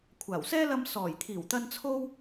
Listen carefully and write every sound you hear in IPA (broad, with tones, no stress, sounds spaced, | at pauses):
kʷʰ aː˨˩ w s ɛː˥ l ɐ˧ m s ɔː˨˩ j t̪ʰ iː˨˩ w t̪ ɐ˧ n t͡sʰ o˥ w